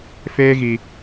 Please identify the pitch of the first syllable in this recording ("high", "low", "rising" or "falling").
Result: high